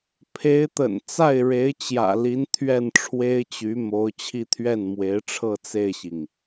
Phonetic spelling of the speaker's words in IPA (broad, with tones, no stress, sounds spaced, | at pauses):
pʰ e˧˥ ɪ̯ t̪ ə̰˨˩ n t͡s a˥˩ ɪ̯ ɻ e˧˥ ɪ̯ t͡ɕ j ä̰˨˩ l i˧˥ n t̪ʰ ɥ ɛ˥˩ n ʈ͡ʂʰ w e˥ ɪ̯ t͡ɕ y˧˥ m o˧˥ ʊ̯ t͡ɕʰ i˥˧ t̪ʰ ɥ ɛ˥˩ n m w e˧˥ ɪ̯ ʈ͡ʂʰ ɤ˥˧ t͡s e˥˩ ɪ̯ ɕ i˩ ŋ